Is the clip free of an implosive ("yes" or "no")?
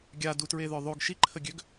yes